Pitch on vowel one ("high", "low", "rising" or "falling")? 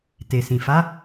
low